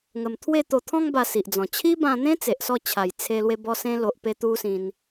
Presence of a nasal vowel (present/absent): present